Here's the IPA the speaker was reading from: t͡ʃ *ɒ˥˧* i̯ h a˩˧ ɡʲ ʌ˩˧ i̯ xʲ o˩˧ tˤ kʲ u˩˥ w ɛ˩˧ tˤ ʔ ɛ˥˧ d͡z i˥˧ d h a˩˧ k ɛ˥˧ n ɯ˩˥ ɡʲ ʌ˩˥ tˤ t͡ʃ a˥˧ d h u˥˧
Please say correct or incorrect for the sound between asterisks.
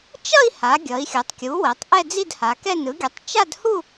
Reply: incorrect